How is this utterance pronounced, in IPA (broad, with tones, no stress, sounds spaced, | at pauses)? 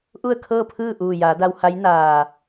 ʔ u˥˨ ə̯ kʰ ɤː˥˨ pʰ ɯː˥˨ ʔ uː˧˩ j aː˩˧ d a˧ w h a˧˥ j n aː˧˩